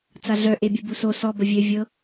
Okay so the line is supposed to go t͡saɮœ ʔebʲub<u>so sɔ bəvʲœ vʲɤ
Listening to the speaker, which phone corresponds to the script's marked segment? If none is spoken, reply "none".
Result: u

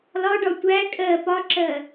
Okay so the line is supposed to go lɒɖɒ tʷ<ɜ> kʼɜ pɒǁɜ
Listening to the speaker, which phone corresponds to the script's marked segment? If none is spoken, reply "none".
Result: æ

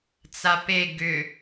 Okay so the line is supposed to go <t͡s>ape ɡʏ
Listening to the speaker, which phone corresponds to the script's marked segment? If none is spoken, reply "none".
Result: t͡s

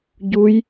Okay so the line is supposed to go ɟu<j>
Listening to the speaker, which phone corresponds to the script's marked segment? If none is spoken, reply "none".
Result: j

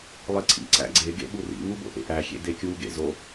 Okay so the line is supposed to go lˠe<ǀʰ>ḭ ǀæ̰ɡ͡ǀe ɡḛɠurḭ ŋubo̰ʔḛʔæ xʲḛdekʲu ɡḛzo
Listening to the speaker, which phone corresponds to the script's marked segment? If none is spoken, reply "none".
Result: ǀʰ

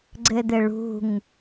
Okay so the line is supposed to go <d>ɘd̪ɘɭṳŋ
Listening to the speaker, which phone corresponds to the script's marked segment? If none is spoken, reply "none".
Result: ɡ͡ǀ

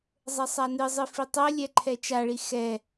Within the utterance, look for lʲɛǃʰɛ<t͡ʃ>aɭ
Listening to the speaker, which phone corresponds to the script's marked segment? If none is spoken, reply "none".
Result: t͡ʃ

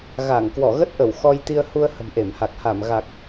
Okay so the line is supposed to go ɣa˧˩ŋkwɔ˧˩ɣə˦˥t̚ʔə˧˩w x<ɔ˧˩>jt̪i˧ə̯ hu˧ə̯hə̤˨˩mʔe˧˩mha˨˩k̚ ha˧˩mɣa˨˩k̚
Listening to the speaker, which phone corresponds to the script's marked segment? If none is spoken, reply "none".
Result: ɔ˧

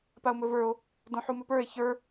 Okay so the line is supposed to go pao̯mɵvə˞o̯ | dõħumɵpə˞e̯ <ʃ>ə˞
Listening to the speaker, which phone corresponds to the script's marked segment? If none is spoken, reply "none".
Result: ç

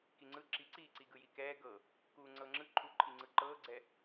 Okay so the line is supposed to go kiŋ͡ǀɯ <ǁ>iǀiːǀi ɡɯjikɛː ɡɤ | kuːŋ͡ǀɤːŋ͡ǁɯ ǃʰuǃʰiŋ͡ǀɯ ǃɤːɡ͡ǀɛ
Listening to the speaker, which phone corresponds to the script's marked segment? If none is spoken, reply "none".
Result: ǁ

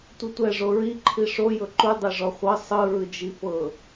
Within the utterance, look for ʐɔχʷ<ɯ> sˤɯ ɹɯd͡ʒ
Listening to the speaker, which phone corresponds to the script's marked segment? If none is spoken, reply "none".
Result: ɤ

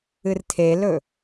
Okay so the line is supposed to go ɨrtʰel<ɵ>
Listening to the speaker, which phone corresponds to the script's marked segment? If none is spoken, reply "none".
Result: ɵ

